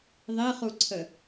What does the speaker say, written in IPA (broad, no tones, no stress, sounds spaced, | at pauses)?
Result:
ðˤ i χ u ǀʰ ə